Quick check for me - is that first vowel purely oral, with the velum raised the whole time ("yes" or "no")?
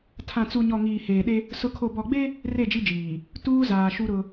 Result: no